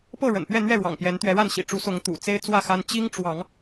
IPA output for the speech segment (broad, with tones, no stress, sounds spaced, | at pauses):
p ɤ˥˨ ɻ ə̰˨˩ n p ɥ ɛ˥˨ n̪ ɥ ɛ˥˨ ɻ w ɑ̰˨˩ ŋ p j ɛ˨˦ n t̪ ɥ ɛ˨˦ ɻ a˥˨ n ɕ ḭ˨˩ ʈ͡ʂ u˨˦ s ʊ˨˦ ŋ t̪ ṵ˨˩ t͡s e˦ ɪ̯ t͡s w ä˥˨ x a˦ n t͡ɕ i˦ ŋ ʈ͡ʂ w ɑ˨˦ ŋ